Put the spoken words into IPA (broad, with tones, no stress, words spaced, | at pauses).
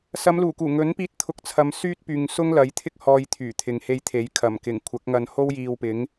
sɐ˨˧mluː˨˩kuː˨˩ ŋɵ˨˥npiː˧t̚ t̪ʰʊ˧k̚t͡sʰɐ˨˧msyː˥t̚pyː˨ŋ sʊ˥ŋlɐ˨˥jt̪ʰɪ˥k̚ hɔː˧jt̪ʰyː˨˩t̪ʰɪ˨ŋhe˧j t̪ʰe˨˥jkʰɐ˨˩mkɪ˨˩ŋ kʷʰɐ˨˥k̚ŋɐ˧nho˥w jiː˧wpɪ˨˥ŋ